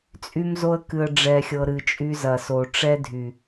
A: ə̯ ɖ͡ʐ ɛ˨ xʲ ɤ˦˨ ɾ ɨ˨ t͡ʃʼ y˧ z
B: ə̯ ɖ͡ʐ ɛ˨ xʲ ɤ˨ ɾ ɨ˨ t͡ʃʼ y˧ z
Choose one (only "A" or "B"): B